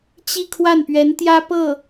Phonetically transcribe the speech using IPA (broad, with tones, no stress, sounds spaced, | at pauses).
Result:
t͡ɕ i˥˧ kʰ w a˥˩ n p ɥ ɛ˧˥ n t̪ j ä˥ p ɤ˥˩